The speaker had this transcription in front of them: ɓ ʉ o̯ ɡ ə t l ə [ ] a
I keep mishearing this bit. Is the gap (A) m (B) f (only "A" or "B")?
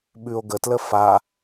B